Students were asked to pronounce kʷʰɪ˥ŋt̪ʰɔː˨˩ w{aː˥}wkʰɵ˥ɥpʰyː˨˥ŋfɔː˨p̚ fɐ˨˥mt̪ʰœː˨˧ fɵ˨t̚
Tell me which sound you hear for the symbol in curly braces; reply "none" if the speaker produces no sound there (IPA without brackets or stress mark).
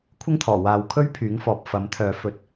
aː˨˧